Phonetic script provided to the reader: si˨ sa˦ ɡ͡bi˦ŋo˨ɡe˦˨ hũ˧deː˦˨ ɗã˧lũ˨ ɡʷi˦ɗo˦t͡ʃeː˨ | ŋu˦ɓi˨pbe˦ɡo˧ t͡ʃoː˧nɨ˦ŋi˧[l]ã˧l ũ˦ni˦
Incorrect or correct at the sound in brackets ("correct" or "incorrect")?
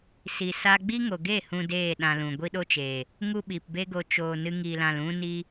correct